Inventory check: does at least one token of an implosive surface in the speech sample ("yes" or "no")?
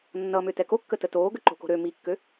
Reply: no